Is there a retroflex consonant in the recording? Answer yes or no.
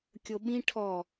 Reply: yes